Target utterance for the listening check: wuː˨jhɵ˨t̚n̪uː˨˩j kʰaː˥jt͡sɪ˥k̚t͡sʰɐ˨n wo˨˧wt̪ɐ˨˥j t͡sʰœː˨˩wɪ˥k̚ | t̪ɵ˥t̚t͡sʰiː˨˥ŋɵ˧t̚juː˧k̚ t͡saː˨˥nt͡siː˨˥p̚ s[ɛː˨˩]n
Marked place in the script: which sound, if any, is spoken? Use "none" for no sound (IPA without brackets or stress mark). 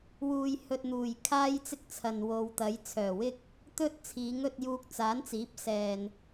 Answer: ɛː˨